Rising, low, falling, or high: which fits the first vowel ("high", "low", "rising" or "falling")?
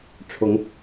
rising